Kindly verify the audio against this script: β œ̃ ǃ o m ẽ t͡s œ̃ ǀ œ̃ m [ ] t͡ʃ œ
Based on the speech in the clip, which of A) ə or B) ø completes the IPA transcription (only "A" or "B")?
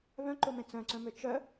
B